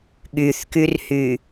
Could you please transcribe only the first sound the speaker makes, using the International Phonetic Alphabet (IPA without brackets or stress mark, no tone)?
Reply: ɠ